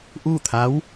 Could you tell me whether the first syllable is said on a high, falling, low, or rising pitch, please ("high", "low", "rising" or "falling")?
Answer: falling